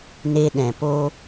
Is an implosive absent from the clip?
no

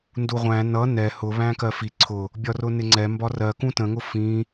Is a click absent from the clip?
no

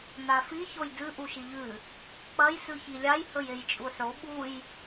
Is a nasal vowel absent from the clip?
yes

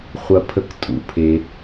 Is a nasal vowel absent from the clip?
yes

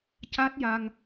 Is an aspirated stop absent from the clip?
yes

